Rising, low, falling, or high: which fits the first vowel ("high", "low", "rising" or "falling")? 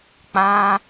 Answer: high